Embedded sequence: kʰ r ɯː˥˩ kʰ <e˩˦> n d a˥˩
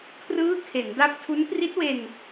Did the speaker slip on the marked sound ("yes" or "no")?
no